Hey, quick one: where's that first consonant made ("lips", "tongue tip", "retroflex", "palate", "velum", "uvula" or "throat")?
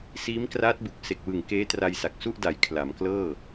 tongue tip